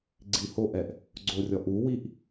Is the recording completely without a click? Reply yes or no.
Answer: no